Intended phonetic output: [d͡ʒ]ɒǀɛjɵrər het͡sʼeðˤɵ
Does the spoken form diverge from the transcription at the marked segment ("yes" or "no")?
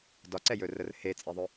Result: yes